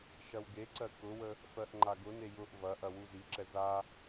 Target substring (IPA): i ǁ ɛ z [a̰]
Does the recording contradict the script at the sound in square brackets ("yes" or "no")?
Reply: yes